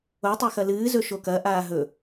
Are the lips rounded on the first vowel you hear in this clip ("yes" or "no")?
yes